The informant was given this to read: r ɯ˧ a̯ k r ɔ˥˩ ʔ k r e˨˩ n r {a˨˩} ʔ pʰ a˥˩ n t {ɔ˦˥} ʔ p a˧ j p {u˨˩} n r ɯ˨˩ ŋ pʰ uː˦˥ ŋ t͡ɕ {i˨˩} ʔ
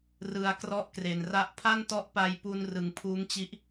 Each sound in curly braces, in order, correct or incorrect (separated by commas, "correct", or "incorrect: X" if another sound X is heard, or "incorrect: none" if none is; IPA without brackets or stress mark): incorrect: a˥˩, correct, incorrect: u˧, incorrect: i˦˥